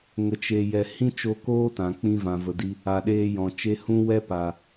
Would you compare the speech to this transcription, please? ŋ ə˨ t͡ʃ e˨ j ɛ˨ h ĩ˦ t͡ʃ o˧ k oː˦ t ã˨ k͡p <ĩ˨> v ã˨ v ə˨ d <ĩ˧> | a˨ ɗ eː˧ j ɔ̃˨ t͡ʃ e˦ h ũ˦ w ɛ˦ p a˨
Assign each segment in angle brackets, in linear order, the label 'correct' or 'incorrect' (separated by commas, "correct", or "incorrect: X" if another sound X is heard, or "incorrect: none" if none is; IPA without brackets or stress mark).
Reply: incorrect: ĩ˧, incorrect: i˧